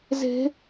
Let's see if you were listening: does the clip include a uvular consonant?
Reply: no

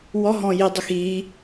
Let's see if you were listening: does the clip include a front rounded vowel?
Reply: no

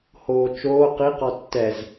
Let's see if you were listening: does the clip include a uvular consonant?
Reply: yes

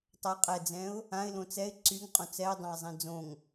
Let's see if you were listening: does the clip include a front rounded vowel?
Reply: yes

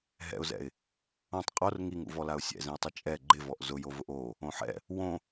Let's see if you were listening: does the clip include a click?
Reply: yes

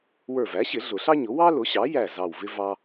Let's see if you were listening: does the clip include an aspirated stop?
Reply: no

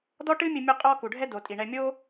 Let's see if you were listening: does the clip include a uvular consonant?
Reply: yes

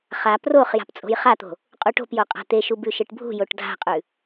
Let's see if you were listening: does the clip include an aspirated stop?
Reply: no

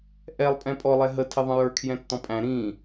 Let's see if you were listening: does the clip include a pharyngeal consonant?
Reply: no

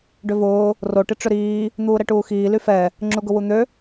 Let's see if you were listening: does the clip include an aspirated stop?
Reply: no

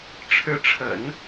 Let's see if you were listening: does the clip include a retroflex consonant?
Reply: yes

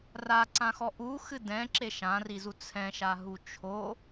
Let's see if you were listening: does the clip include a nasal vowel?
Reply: yes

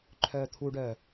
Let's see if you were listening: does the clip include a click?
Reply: yes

